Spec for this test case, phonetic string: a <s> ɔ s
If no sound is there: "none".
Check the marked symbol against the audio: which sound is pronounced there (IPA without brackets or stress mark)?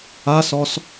s